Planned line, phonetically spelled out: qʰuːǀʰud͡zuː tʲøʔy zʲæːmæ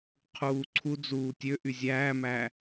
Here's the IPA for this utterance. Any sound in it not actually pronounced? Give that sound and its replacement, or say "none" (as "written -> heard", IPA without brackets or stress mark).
none